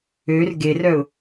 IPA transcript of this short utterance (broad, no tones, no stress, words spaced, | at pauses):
ør ɡerœʊ̯